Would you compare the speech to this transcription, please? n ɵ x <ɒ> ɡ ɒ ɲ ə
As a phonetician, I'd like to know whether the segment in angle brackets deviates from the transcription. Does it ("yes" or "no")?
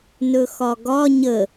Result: no